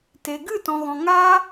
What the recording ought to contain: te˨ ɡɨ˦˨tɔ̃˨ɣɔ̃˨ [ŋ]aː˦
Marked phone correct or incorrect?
correct